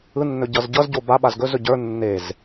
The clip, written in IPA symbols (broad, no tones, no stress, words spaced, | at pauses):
ɯnːɵ ɟʌzɟʌzɟo baɓaz ɡɵzɵ ɟə˞ nːez